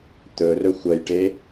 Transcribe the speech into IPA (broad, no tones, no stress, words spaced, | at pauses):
t̪ɵrɵ xʷɐjʈe